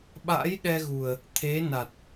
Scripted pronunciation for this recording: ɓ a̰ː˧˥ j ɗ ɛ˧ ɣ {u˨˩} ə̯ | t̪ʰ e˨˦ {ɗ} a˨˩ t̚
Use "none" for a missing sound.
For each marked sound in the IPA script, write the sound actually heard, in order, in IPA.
u˨˩, n

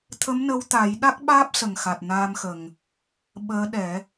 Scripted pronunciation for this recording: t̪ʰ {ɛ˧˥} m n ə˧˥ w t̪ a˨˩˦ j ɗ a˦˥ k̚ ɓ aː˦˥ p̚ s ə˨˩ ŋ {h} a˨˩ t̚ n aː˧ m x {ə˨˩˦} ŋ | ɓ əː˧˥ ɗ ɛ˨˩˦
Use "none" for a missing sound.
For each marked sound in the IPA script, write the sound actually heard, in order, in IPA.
ə˧˥, x, ə˨˩

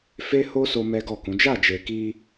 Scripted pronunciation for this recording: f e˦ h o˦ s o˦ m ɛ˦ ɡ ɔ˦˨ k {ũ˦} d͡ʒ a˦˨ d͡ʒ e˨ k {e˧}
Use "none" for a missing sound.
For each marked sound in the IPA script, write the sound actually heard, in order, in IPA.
ũ˨˦, i˧

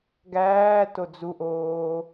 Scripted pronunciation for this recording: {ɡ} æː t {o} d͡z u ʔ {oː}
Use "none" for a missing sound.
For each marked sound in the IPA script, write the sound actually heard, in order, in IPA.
ɡ, o, oː

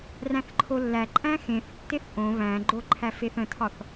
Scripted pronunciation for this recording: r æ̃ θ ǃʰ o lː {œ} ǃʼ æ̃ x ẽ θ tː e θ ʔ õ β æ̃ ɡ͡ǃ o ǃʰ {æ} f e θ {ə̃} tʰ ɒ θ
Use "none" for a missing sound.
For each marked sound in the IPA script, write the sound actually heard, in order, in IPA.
æ, æ, ə̃

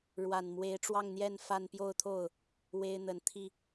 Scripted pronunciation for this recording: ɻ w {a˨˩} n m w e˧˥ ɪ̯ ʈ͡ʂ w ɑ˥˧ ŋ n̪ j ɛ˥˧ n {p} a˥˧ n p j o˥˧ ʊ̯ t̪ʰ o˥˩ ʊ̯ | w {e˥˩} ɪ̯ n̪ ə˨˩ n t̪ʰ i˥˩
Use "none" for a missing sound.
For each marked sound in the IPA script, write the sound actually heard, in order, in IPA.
a˨˩, f, e˥

